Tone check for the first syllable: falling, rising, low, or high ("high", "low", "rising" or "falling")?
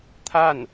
falling